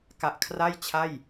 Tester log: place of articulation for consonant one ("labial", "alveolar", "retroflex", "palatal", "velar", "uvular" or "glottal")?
velar